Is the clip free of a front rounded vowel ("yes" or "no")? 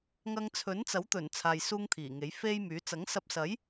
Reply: no